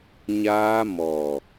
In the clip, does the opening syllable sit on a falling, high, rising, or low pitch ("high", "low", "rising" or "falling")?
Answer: high